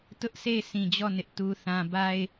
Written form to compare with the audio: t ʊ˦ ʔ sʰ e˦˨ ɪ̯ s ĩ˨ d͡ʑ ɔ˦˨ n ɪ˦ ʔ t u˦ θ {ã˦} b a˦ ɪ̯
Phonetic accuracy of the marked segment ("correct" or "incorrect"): correct